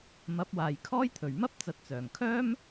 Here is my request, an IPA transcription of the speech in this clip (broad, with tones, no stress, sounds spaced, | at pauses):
m ɐ˨˥ p̚ w aː˨ j kʰ ɔː˥ j t̪ʰ ɵ˨˩ ɥ m ɐ˥ p̚ t͡s ɐ˨˥ t̚ t͡s œː˨˩ ŋ kʰ œː˥ m